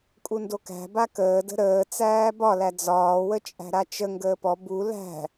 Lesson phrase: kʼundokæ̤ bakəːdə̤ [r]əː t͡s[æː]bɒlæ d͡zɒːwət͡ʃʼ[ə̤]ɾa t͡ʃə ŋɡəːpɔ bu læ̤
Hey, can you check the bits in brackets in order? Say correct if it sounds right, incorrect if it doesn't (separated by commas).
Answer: incorrect, correct, incorrect